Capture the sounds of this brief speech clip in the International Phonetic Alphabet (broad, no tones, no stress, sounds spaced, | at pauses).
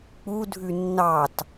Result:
k͡p u dʱ ʉ nː ɑ t